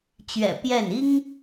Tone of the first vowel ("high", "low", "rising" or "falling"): low